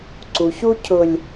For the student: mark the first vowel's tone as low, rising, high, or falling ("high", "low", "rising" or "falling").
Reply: low